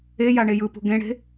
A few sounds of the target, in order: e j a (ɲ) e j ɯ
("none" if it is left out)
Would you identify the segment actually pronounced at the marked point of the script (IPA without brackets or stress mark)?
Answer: ɳ